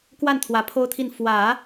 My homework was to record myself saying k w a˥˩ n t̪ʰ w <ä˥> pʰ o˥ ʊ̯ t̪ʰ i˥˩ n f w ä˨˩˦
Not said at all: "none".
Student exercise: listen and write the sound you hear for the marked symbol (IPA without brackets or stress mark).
ä˧˥